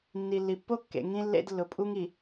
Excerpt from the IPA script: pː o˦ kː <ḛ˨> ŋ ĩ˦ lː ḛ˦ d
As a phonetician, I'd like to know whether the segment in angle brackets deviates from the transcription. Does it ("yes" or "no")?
no